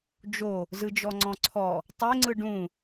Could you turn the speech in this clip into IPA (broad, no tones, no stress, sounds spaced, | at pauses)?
d͡ʒ o | z ɯ d͡ʒ ɔ ŋ͡ǀ ɔ̃ ǀʰ ɔ | tˤ e ŋ͡ǀ ɯ ɖ ũ